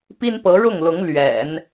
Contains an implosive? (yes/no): no